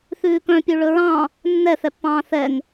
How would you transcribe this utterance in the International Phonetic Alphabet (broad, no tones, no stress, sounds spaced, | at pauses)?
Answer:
θ ʉː k œ̃ pʲ ʉ ɭ ɵ ɹ ɑ̃ | nː ɛ θ ɛ pː ɑ̃ː θ ɛ ŋ